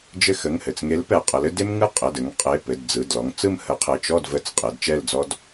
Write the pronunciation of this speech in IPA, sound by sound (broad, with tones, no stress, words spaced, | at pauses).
d͡ʒɘ˦˨xə˩˧˩ŋhɘ˩t͡sŋe˨˥l pɛ˩qʼə˩˧lɘ˦ de˦mŋɯ˦˨ qʼɘ˩˧˩dɘ˩˧ŋ qʼe˩˧˩pɘ˩˧˩d d͡zɯ˩˧˩d lɔ˩˧ŋt͡sɯ˦˨m hə˨˥qʰɘ˩˧˩ t͡ʃɔ˦˨dvə˨˥t͡s qʼe˩˧dt͡ʃɛ˦˨ld͡zɔ˦d